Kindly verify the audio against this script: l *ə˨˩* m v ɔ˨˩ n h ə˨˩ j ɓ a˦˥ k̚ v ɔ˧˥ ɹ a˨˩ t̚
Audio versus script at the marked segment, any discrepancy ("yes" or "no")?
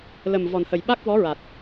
no